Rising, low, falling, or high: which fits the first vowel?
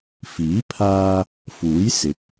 rising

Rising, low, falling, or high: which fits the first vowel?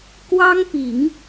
high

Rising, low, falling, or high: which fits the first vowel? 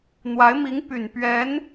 rising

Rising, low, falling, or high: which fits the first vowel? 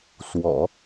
low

